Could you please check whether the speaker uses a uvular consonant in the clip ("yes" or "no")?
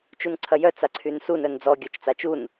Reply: no